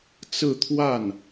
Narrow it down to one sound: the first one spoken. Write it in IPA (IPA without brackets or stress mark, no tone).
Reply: t͡s